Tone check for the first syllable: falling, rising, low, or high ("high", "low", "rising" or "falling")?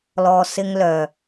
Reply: low